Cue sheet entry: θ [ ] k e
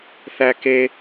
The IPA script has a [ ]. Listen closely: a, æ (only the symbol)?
æ